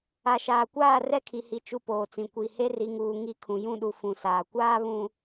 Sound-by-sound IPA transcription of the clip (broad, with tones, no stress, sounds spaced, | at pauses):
a˨ ʃ aː˨ kʷ aː˦˨ r ɛ˦ kʰ i˨ h i˨ t͡ʃ u˦ p oː˨ t͡s ĩ˨ kʷ i˨ h e˦ r i˨ ŋ uː˨ ŋ i˦˨ kʰ ũ˨ j ũ˦˨ ɗ u˨ f ũ˨ s aː˨ kʷ aː˦ β ũ˨